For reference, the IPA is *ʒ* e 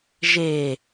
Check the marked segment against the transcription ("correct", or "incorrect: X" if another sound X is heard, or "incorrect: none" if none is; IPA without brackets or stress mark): correct